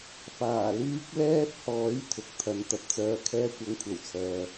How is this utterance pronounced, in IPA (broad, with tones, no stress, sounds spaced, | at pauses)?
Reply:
f aː˨˩ l yː˥ k̚ l ɛː˥ t̚ h ɔː˨˥ j t̪ʰ ʊ˨ k̚ t̪ʰ ɐ˧ n t̪ ɐ˧ p̚ t͡s œː˧ kʰ ɛː˥ kʷ ɐ˧ ŋ kʷʰ ɐ˨˩ w t͡sʰ œː˨